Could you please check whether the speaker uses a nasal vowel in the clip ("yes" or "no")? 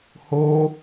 no